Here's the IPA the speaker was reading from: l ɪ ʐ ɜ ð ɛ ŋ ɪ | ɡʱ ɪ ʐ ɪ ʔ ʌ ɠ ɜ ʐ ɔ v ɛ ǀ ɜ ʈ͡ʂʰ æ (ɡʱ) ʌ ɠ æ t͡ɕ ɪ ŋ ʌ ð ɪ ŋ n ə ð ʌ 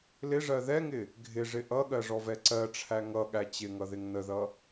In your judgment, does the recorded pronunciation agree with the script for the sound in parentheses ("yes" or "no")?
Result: no